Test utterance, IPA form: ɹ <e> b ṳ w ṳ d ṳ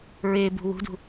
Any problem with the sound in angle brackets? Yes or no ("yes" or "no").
no